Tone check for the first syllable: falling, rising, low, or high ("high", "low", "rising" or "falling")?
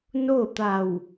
falling